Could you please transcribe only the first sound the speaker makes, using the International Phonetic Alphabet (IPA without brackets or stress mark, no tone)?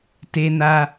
t